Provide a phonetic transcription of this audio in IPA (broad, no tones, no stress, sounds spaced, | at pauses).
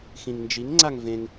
x ĩ ŋ n d͡ʒ i ŋ ŋ͡ǀ a ŋ v ẽ ŋ